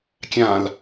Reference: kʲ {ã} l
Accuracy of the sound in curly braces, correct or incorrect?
correct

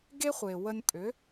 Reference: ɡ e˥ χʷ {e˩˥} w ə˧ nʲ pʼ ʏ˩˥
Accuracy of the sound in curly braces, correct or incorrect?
incorrect: e˩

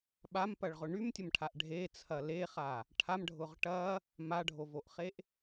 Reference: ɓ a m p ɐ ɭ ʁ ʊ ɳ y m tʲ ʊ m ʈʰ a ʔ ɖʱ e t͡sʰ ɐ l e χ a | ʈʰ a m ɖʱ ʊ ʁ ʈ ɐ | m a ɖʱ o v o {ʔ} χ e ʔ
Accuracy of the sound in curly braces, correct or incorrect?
correct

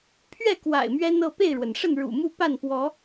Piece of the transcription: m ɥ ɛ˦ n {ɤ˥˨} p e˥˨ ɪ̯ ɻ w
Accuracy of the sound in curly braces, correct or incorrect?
correct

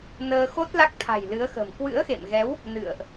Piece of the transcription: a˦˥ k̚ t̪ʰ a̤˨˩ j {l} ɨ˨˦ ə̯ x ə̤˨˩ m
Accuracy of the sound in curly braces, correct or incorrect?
correct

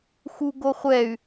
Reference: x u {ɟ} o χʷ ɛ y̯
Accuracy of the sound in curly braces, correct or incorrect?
incorrect: ɡ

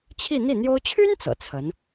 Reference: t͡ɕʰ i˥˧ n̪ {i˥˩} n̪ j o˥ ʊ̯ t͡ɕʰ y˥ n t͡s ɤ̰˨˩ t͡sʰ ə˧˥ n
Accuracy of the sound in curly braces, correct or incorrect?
correct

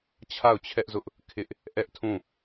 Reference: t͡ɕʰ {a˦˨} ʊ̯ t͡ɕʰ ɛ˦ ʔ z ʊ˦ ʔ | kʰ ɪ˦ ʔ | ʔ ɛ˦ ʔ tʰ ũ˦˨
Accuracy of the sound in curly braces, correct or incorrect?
correct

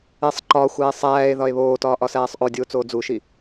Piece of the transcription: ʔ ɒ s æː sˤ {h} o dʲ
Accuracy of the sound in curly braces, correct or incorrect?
incorrect: ʔ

